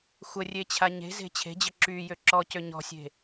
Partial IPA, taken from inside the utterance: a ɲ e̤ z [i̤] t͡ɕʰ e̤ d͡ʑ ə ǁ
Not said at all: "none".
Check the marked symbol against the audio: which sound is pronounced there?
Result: e̤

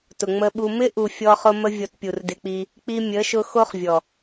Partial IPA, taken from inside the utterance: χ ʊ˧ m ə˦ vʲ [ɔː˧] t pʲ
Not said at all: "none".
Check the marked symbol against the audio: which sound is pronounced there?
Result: ɔ˧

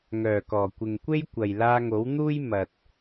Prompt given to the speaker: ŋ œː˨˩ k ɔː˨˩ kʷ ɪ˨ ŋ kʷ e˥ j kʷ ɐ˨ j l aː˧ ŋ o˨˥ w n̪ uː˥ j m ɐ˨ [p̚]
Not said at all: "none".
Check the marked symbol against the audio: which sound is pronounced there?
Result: t̚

